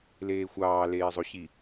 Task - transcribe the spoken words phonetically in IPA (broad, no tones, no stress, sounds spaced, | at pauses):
l eː xʷ ɑː l eː zˤ o ɕ i